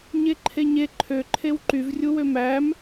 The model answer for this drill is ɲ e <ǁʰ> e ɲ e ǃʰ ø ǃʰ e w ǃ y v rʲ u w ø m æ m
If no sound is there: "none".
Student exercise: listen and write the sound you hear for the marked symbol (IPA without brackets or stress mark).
ǃʰ